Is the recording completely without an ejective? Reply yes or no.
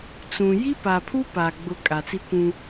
no